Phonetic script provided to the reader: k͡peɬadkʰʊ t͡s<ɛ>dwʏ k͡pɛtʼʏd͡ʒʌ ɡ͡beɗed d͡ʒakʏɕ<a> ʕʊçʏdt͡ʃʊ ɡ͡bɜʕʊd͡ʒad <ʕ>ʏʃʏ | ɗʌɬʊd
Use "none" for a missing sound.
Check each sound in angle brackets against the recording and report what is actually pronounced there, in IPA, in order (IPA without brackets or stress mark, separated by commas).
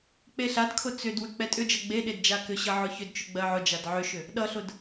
ʏ, ʌ, ʕ